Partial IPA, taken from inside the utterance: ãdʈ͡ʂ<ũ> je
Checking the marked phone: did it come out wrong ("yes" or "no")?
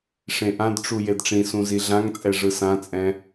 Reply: yes